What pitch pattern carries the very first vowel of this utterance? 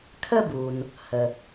high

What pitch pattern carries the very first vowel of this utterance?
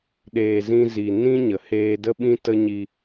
low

